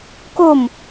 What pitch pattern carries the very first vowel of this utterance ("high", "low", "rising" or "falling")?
falling